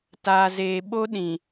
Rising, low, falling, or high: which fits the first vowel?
low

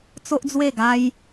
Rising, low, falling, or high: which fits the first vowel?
high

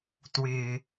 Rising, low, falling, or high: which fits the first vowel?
low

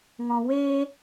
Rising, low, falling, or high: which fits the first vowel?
low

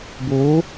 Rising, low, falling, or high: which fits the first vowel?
rising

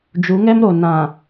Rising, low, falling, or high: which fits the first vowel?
rising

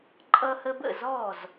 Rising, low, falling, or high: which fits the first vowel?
high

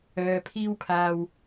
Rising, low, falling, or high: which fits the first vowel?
low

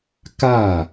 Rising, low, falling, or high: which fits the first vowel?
falling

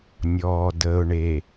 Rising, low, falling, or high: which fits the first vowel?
low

